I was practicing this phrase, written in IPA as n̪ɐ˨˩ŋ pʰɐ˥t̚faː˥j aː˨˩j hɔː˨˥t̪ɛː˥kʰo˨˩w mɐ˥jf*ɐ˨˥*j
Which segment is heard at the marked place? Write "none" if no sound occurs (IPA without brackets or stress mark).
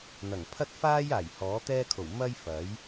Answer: ɐ˨˥